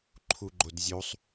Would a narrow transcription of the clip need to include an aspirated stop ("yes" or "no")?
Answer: yes